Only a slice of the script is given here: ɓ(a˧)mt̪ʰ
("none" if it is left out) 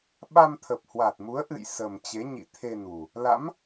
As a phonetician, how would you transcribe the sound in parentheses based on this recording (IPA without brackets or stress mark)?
a˧